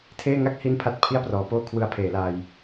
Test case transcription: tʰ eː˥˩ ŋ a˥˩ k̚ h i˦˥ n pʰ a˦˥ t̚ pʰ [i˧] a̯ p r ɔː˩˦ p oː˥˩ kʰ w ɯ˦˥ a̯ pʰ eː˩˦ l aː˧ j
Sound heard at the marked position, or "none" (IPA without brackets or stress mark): i˥˩